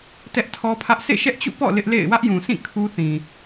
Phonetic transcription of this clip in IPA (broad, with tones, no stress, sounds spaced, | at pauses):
t ɛ˦ ʔ tʰ ɔ˦ pʰ ä˦ ʔ s ḛ˦˨ ʃ ɛ˦ ʔ t͡ɕ ṵ˦˨ p ɔ̰˦˨ l ɪ˦ ʔ l ḛ˦˨ ɪ̯ w ä˦ ʔ j ũ˨ sʰ ĩ˦˨ kʰ u˦ θ ĩ˨